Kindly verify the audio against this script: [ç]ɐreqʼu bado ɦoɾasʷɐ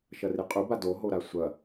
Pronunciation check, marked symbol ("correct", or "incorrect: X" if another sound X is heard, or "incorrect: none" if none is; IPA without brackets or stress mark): incorrect: ʃ